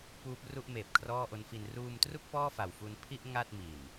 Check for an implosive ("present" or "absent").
absent